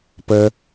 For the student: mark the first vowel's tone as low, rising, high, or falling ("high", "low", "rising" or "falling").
high